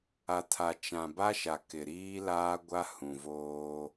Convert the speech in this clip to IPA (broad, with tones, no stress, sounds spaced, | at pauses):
a˨ tʰ a˨ t͡ʃ ã˨ b a˦ ʃ a˨ k ɪ˨ ɾ iː˦ l aː˦ ɡʷ a˦ h ũ˨ v oː˦